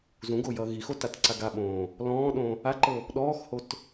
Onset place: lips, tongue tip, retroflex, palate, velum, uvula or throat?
tongue tip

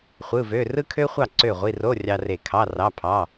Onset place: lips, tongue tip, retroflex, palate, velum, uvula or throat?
uvula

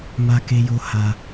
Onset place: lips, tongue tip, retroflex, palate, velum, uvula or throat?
lips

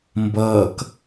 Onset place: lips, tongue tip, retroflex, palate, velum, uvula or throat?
lips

